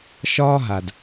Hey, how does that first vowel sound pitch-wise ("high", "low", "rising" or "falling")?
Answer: high